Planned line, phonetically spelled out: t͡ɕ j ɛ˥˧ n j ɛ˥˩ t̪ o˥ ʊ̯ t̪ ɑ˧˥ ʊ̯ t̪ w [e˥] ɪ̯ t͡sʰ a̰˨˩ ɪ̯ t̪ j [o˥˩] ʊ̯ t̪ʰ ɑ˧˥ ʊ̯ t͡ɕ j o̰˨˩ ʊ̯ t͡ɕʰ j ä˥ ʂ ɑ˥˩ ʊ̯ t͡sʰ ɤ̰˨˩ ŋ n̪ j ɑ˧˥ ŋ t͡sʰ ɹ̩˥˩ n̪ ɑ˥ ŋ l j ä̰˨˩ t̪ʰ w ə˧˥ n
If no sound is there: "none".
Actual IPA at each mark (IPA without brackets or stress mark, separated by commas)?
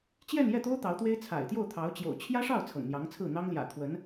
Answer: e˥, o˥˩